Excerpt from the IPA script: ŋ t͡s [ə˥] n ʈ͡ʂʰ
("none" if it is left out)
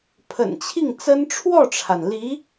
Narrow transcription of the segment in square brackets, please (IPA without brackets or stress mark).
ə˥